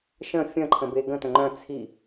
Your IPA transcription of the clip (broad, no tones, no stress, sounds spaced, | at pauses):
ʃ ə̃ fʲ ə̃ ǃʰ ə̃ b e ɡ ə̃ t ə̃ ŋ͡ǃ œ̃ t͡sʰ i